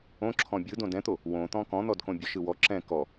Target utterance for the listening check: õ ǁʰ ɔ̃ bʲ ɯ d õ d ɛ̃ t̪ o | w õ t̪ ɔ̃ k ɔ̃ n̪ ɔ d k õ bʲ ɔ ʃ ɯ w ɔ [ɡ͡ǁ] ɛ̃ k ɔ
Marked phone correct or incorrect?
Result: incorrect